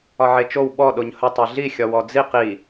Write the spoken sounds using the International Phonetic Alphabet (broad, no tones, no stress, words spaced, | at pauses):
ɒʕet͡ʃow ɓɔ ɗoɲhə tˤiɮi xʲɒwɔd͡ziq i